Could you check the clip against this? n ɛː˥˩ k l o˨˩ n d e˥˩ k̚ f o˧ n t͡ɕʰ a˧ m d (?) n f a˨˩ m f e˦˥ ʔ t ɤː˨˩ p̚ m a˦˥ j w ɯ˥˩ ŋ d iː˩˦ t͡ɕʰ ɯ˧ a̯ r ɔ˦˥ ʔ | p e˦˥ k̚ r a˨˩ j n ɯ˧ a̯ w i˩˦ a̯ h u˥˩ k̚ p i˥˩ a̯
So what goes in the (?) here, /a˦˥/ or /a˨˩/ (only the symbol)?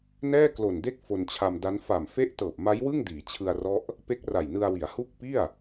a˦˥